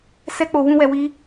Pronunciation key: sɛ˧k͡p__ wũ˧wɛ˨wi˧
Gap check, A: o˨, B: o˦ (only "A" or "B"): A